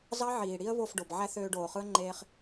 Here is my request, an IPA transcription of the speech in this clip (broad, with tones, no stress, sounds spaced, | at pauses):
z ɑ˦ ʕ iː˨ ɽ i˦ ə̯ β o˦˨ f ɖ o˨ b ʕ æ˦ θ øː˧ ɖ oː˨ χ ɯ˦ ə̯ ŋ͡ǃ eː˧ χ